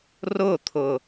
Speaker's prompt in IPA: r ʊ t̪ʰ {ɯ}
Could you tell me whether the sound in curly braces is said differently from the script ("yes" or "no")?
yes